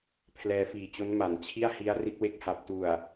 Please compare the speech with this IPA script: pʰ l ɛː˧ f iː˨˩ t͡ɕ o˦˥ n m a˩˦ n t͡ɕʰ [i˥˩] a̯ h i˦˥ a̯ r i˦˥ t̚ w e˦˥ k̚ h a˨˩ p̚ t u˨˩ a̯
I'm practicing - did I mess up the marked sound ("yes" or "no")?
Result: no